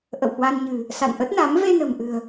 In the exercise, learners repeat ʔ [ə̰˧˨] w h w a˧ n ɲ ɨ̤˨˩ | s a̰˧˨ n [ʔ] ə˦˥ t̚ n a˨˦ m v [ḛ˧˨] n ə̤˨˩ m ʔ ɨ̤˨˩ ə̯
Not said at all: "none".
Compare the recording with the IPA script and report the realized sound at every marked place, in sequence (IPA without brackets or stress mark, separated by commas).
ə̰˧˨, ʔ, e˧